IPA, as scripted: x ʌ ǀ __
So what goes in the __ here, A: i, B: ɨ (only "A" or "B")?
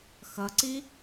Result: A